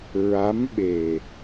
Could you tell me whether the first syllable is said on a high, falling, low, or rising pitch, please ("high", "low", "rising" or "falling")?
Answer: rising